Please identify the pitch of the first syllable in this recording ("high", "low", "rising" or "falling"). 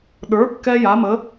rising